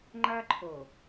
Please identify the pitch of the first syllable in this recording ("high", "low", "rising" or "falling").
high